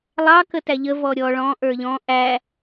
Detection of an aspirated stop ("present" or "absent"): absent